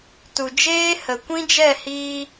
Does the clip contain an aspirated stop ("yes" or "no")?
no